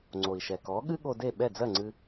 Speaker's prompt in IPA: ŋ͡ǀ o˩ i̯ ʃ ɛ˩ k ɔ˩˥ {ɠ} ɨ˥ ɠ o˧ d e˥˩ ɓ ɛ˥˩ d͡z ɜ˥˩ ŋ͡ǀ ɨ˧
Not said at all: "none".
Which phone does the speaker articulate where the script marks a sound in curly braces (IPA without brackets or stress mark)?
ɠ